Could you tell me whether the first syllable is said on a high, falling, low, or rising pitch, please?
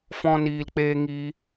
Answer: high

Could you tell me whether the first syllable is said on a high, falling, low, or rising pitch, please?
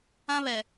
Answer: high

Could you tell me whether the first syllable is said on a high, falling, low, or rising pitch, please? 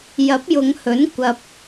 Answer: rising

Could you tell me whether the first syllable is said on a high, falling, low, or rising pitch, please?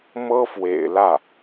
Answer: high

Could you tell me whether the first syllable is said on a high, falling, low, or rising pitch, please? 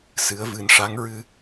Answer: rising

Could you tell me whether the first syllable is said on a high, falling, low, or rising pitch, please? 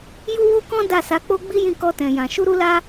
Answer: high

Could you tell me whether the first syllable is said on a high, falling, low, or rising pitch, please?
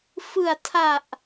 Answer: low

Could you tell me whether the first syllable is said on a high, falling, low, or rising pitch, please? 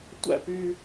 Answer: falling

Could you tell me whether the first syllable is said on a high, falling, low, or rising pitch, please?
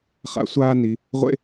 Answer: rising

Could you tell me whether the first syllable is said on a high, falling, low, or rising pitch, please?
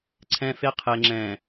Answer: high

